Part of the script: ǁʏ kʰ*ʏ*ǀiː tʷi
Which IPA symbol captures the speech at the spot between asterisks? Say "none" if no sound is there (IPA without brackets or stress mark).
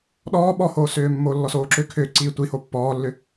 ʏː